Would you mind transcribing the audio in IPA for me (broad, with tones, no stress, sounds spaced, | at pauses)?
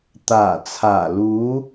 t̪ aː˨˩ t͡sʰ aː˨˩ l uː˨˧